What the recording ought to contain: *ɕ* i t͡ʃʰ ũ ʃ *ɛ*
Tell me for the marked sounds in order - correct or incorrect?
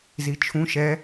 incorrect, correct

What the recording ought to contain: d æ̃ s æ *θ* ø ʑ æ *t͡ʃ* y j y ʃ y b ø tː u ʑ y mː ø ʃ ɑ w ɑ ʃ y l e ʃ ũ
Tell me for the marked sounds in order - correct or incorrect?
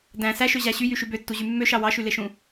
incorrect, incorrect

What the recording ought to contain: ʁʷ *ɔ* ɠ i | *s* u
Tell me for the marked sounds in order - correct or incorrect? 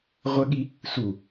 incorrect, correct

